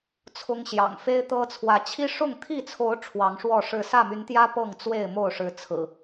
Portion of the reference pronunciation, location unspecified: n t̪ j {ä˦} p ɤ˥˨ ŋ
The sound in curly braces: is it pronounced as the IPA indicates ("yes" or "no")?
yes